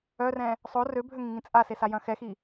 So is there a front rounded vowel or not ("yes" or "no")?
yes